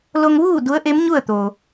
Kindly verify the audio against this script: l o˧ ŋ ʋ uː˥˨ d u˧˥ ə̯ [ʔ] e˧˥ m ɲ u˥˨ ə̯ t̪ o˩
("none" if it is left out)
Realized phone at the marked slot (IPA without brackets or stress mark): ʔ